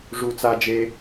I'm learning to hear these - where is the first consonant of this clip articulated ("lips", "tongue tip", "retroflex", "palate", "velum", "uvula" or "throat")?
retroflex